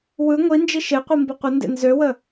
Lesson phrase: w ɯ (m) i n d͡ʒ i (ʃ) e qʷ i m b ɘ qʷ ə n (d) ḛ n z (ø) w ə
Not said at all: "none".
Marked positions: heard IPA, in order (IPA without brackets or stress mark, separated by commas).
ŋʷ, ʃ, d, ø